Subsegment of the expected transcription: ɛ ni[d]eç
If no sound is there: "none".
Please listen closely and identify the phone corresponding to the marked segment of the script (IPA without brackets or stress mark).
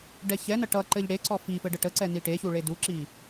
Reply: ʈ